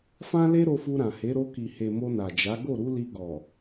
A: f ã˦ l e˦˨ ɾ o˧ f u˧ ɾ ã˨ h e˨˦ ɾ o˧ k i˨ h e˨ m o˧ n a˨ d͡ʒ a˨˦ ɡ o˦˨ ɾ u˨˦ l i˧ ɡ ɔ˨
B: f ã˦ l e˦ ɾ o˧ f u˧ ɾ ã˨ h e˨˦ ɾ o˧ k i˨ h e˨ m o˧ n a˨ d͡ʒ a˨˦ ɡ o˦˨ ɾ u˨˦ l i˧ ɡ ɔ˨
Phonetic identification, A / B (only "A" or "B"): B